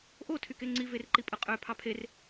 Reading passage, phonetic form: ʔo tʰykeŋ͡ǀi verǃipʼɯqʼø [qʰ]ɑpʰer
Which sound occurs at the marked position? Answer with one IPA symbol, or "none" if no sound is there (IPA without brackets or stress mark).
pʰ